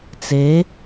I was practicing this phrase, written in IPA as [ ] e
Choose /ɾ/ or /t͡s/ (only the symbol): t͡s